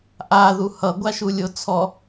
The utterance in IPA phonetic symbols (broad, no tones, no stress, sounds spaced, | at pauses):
ʔ a ð u h ʌ ɡʷ a ʃ u lʲ o t͡sʰ ɔ